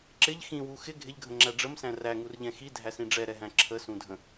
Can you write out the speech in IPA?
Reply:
ǁɪʎ xĩwu xɪ ɡʱɪʎɡʱə̃ŋ͡ǁæ ɖ͡ʐəmsæ̃ ræŋurʎɛ̃ xidʱæsĩ ɖ͡ʐɛɾɛɦæ̃ ǁʰəsũdʱə̃

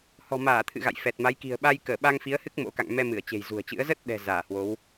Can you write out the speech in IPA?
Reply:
hɔ̤˨˩maː˧˩t̪ʰɨ̰˧˨ ɣa̰˧˨jfɛ˨˩t̚ma˨˦j ki̤˨˩ə̯ɓa˧j kəː˧˩ɓa˧ŋfi˨˦ə̯hɨ˦˥k̚ mo̰˧˥ka̰˧˨ŋmɛ˧mɨ˧˩ə̯ t͡ɕe̤˨˩jzṳ˨˩ə̯t͡ɕɨ̰˧˥ə̯ zə˦˥t̚ɗɛ̤˨˩ zaː˧˩hwo˨˦w

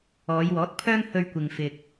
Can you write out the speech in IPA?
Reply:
ɔː˨˧jwɔː˨˥t̚ pʰœː˥ŋhɵ˧ɥkʷɪ˨ŋ fɪ˨k̚

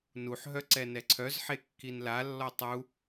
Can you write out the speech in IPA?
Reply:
nuħɦœ ǀɛnɛǀʰœzħe kːinlalːɔ tˤu

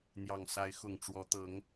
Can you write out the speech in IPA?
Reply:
n̪jɑ˨˩ŋsa˧˥ɪ̯ xʊ˨˩ŋ ʈ͡ʂwɔ˧˥t̪ɤ˧˥ŋ

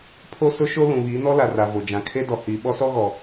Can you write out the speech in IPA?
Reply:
pʰo˦sʊ˦ʃo˦ lũ˨βiː˨˦nɔ˦la˨ ra˨ vo˨d͡ʒã˨kʰe˦dɔ˨ hiː˨ ɓɔ˦sɔ˦ɣɔ˨

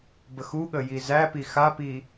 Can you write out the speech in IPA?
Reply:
bəxuɠə jizæpi xapi

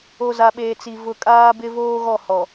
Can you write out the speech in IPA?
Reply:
o˨ za˨ɓeː˨t͡si˨ vʊ˨kʼaː˦bɪ˦ voː˦ɣɔ˦˨hɔ˨

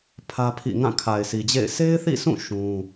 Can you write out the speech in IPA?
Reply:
pʰä˦pʰḭ˦˨ ŋã˦˨kʰa˨ɪ̯sʰi˨d͡ʑḛ˦˨ɪ̯ se˦ɪ̯θḭ˦˨sʰũ˦˨ ʃũ˦

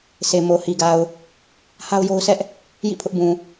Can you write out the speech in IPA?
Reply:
sʰe˨mo˨hi˨ɡa˨ʊ̯ | ha˦ʊ̯jo˦ʊ̯sʰɛ˦ʔ | jḭ˦˨ pʰʊ˦ʔbũ˨

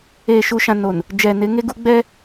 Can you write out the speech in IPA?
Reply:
eː˨ʃu˨ʃã˨ no˨n | d͡ʒɛ˨ nɪ˨˦ŋe˦ɡu˦ ɡ͡bɛ˦

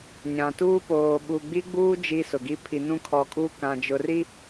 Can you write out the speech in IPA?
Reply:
ɲã˨tuː˦ poː˨ɓu˨ɡ͡bi˦ɡ͡buː˦ d͡ʒi˦sʊ˨ɡi˦ pʰi˨nũ˦kʰɔ˨˦kʼuː˦ kã˨d͡ʒʊ˨ri˦

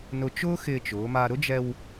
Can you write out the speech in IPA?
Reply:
nʊ˧t͡ʃʊː˥xɪː˧t͡ʃʊː˩˧ ma˧ ɾʊ˥d͡ʒɛ˧w

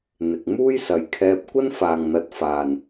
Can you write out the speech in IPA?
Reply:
n̪ɪ˨k̚ muː˥jsɐ˨jkʰɛː˧p̚ kʷɐ˥nfaː˨ŋn̪ɐ˨˥t̚ faː˨n

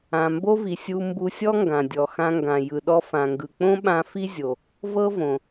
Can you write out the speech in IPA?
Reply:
ã˩mbo˥vi˩sʲu˧ mbu˧sʲɔ˥ŋɡã˩ dʲɔ˩xã˧ŋɡã˩ jɯ˩ɗɔ˧fã˩ŋɡɯ˩ k͡põ˥ɓã˧ fi˥zʲo˩ | vɤ˥võ˩

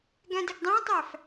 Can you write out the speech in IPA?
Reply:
ɡæ̃dɪɡdˤæ̃tˤæf

